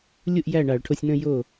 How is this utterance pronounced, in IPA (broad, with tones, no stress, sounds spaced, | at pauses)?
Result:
lʲ u˥˩ ʔ j æ˥˩ ɳ a˧˩˧ ɭ ʈʰ o˧ sʲ n ə̃˥˧ j o˥˩